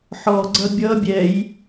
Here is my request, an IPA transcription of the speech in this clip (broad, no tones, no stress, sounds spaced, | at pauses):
ħ ɔ ɡ͡ǀ ʌ bʲ ʌ bʲ ɛ j